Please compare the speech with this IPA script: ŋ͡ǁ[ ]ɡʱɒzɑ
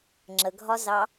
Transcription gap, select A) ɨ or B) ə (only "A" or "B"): B